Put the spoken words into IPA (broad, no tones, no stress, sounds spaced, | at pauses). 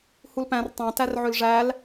h u l p æ̃ r tˤ æ̃ t æ r ʕ ø l ʐ æ l